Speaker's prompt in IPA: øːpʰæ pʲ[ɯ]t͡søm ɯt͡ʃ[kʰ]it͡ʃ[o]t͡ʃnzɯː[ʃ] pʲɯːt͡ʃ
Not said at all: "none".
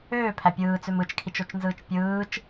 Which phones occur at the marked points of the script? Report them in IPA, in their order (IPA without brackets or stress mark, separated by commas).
ɯː, kʰ, o, t͡ʃ